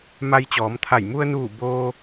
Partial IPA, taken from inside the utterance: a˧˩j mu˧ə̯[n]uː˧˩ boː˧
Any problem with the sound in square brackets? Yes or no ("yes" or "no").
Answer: no